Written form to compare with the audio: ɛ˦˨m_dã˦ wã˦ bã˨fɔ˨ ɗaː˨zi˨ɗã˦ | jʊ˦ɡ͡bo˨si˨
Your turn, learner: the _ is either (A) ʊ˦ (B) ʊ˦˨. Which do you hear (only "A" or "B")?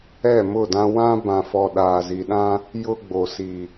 B